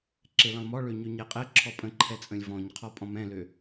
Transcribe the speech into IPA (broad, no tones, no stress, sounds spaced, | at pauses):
ǁ e l ə̃ lˠ m ɔ ɭ ø ɲ ø ɲ ɛ qʼ ɛ ǁʰ ɔ pʼ ə̃ ǃʰ ɛ t͡sʼ ə̃ lʲ v ɔ̃ ɲ qʰ ɔ pʼ ɔ̃ m ɛ̃ l ø